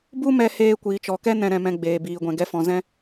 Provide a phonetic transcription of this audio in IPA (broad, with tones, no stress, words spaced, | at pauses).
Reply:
bu˦mɛ˧ heː˧kʷiː˨t͡ʃɔ˨kɛ˦ nɛ̃˧ɾɛ̃˧mɛ̃˧ ɡ͡beː˨biː˨ɡʷɛ̃˨ ɡɛ˧fɔ̃˨zɛ̃˧